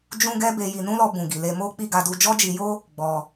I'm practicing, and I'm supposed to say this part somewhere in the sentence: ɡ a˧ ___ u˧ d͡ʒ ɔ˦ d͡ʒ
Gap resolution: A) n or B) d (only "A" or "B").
B